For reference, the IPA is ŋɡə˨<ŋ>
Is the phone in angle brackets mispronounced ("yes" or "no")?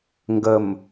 yes